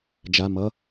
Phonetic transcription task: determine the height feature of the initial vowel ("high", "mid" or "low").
low